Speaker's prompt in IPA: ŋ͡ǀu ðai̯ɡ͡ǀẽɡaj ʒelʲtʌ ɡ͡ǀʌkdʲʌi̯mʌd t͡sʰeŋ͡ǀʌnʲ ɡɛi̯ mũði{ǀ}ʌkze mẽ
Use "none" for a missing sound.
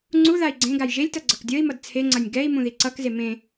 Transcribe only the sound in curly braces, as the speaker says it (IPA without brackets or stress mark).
ǀ